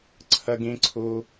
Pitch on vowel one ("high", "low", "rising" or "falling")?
high